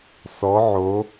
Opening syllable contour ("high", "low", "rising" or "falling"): rising